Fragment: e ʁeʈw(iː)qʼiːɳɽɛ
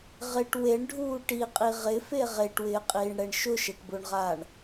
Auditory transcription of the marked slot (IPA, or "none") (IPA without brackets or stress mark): ɪː